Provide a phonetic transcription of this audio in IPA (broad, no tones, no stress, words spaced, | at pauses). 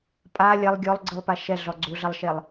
pʼa lʲɐlˠ ɡʲɔlˠɡ͡ǀɯlˠpa ʃɛɮɔ ɡ͡ǀuɮɐlˠʃelˠ